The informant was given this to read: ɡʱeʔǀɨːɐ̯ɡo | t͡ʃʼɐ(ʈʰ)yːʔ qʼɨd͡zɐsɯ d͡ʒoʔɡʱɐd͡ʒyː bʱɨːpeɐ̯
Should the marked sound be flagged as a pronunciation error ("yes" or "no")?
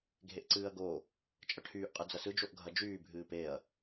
no